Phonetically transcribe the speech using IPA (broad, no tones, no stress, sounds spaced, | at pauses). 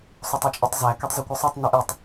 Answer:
sˤ o tˤ ø t͡ʃʼ i tˤ z æ k ø tˤ z i kʷ ɯ sˤ u tˤ n i ʔ i tˤ